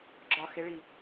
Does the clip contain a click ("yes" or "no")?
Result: yes